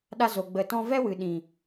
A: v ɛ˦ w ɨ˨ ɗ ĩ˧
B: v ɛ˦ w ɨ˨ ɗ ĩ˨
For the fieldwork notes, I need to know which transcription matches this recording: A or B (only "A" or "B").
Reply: B